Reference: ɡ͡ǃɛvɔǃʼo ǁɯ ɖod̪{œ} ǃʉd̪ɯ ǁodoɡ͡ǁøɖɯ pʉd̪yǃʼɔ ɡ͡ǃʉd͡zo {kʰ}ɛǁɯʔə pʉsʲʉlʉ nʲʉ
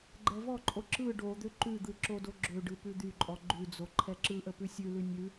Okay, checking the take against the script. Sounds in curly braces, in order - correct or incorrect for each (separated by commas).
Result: incorrect, incorrect